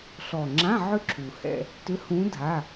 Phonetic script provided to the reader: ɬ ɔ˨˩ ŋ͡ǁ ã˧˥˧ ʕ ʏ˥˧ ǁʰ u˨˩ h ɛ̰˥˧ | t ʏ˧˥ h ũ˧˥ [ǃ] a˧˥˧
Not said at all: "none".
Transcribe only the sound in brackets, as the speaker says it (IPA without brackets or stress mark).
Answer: dʱ